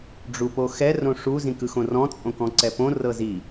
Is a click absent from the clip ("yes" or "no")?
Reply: no